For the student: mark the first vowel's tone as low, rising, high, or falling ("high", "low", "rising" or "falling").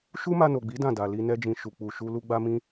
high